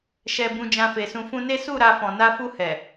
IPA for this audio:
ʃ ɛ˨ b ũ˧ d͡ʒ ã˧ f e˨ s ũ˧ f ũ˧ n e˦ s u˦˨ ɾ a˧ f ɔ̃˨ n a˧ f u˧ h ɛ˨

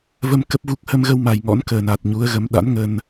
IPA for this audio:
v ə˧ m k ə˦˥ p̚ v u˦˥ k̚ h ə˧ m ɣ ə˧ w m a˨˩ j ŋ ɔ̰˧˥ n k əː˨˩ n a˨˩ t̚ ɲ u˨˦ ə̯ ɣ ə˨˦ m ɗ a̰˧˥ n ŋ ə˧ n

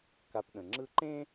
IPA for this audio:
k a˦ p ɗ ə̃˨ ŋ͡ǁ ɯ˦ ǃ ẽ˥

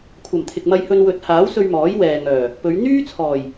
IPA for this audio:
kʷʰ ɐ˨˩ m t̪ʰ ɪ˨ k̚ m ɐ˧ j h ɵ˧ n w ɵ˨˥ t̚ h aː˨˥ w s ɵ˧ ɥ m ɔː˨˥ j w ɛː˨ ŋ œː˨˩ | p ɵ˨˧ ɥ n̪ yː˥ t͡sʰ ɔː˨˩ j

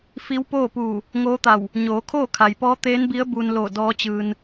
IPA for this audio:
f i˧˥ w p oː˥˨ p uː˧˩ | ŋ oː˧˥ t̪ a˧˩ w | ɲ oː˩˧ kʰ oː˥˨ kʰ a˩ j p ɔː˧˥ t̪ eː˧˥ n b i˧˥ ə̯ b u˧ n l o˧˩ d ɔː˧˥ t͡ɕ ɯː˧ n

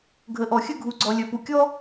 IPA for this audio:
ɡʱ ə˧ ʔ ɔ˧ xʲ ə˥ ɡʱ u˧ ɡ͡ǀ ɔ˧ lʲ œ˧ p u˧ kʲ ɔ˥

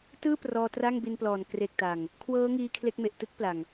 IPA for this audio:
t ɯː˥˩ p r ɔː˧ t r a˥˩ ŋ b i˧ n p l ɔː˨˩ n k r e˨˩ k̚ t a˨˩ ŋ | kʰ w ɤː˦˥ ŋ iː˧ kʰ l e˦˥ k̚ m e˨˩ ʔ t ɯ˥˩ k̚ p l a˨˩ ŋ

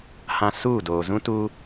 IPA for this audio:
h ã˨ s uː˦˨ d oː˨ z ũ˦ t uː˦

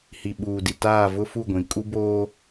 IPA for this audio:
h i˨ ɓ uː˨ d i˨ t aː˦˨ v ʊ˦ f u˦˨ ɡʷ ĩ˨ kʼ u˦ b oː˦

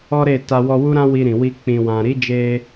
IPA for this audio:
ɔ˦ ɾ e˦˨ t a˧ w ɔ˧ w u˦ ɾ ã˦ w i˧ ɾ ĩ˨ w i˧ k͡p ĩ˨ w ã˨ ɾ i˨˦ d͡ʒ e˧

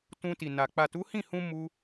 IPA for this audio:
t ũ˧ t i˨ n a˨ k͡p a˨ t u˨˦ h ĩ˦˨ h ũ˧ m u˧

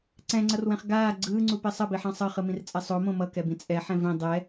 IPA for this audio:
ǀ ɛ̃ ŋ͡ǀ ʌ r w ɛ̃ χ ɡ aː ɡ͡ǀ ɯː ŋ͡ǀ u p e sˤ ʌ b i ħ ã sˤ ʌ χ ɯ m ĩ r t͡sʼ ɛ sˤ o m õ m ʌ k ɛ b ĩ t͡sʼ ɛ ħ ɛ̃ v ĩ dˤ ɛ

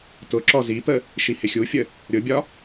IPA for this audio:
t ʊ ǁ ɔ z i p ə | ʃ i h ɪ xʲ u fʲ ə | ɾʲ ʊ bʲ ɒ

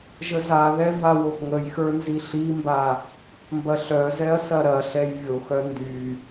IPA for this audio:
ʒ ə z a ð ɛ v a w o x ŋ ə j x ə˞ n z i ɬ i m b a | m b ɐ ɬ œ z ɛ ɐ̯ s ɐ ɾ ɐ ɬ ɛ j vʲ o x œ n d y

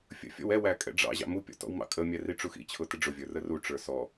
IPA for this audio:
fʲ ə̰ fʲ ɔ̰ w ɛ w æ kʼ ɛ̰ ɖ͡ʐ ɑ̰ ʑ ɑ̰ m u pʲ ɔ̰ t ɔ̰ w m ɑ̰ kʼ ə mʲ æ r i ʈ͡ʂ u x ḭ t͡ɕʰ ʊ t ɪ ɖ͡ʐ ʊ vʲ ə˞ r ə r u ʈ͡ʂ ə˞ s ɔ

